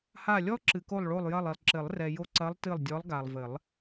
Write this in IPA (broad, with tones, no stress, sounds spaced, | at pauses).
h a˦˨ lʲ ɔ˥ ǁ ɨ˨ k o˦˨ lˠ ɭ o˦˨ lˠ j ɐ˦˨ lˠ i˨ lˠ ǁ ɘ˨˩˦ lˠ r ɛ˨ j o˦˨ ǀ ɐ˧˥ lˠ t ɨ˦˨ lˠ dʲ ɔ˧˥ lˠ ɡ a˨ lˠ v ɘ˨˩˦ lˠ